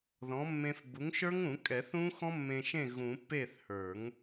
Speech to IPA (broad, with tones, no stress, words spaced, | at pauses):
ðɔ̃˩˥mːẽ˧f bu˩˥ŋʃə˞˦˥ŋũ˨˩˦kʼɛ˨˩˦ θũ˦˥xɔ̃˦˥ mːẽ˧ʃẽ˥˩ ɣũ˨˩˦ pːe˥˩θhə˞˨˩˦ŋ